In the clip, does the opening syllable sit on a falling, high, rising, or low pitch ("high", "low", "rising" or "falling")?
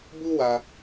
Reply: high